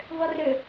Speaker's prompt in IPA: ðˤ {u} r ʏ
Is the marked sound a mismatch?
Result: yes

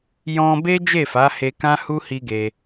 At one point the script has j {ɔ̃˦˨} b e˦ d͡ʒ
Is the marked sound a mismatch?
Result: yes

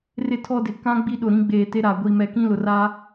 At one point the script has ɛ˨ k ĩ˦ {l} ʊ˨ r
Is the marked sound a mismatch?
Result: no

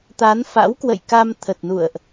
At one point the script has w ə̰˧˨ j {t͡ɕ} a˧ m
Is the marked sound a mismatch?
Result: yes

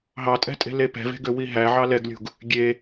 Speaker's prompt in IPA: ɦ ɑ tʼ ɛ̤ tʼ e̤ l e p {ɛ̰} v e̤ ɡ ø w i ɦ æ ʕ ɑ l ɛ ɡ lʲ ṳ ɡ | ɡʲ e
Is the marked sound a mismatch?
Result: yes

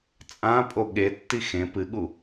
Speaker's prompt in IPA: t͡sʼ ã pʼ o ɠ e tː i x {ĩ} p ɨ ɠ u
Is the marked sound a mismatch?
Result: yes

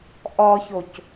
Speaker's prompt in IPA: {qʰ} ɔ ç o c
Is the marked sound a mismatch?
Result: yes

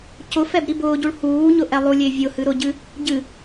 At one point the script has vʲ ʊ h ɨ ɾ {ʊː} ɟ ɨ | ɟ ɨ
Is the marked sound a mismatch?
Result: yes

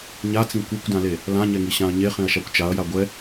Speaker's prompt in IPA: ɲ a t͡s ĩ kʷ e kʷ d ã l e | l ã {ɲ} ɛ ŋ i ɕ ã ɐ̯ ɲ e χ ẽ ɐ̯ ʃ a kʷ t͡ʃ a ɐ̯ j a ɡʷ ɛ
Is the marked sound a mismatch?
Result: no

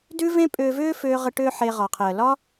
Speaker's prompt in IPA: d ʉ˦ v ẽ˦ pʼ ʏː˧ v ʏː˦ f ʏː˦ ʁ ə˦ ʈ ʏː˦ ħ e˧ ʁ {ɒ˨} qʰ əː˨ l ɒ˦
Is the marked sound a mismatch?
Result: no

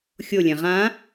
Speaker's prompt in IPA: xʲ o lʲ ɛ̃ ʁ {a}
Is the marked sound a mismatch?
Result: yes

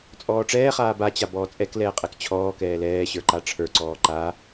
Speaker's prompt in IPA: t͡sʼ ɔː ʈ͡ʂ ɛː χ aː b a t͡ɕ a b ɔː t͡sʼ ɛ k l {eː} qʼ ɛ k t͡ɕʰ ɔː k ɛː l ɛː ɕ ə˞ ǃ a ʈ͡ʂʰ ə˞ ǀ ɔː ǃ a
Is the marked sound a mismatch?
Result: yes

